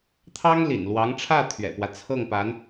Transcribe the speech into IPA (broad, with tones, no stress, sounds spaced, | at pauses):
t̪ʰ ɑ˥ ŋ l ḭ˨˩ n l w ɑ˧˥ ŋ ʈ͡ʂʰ ä˥˩ t̪ʰ ɥ ɛ̰˨˩ p w ä˦ t͡sʰ ɤ˥˩ ŋ p a˧˥ n